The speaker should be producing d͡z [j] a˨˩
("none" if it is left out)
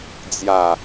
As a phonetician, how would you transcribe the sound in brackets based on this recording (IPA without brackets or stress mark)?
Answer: j